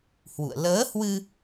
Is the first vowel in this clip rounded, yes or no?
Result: yes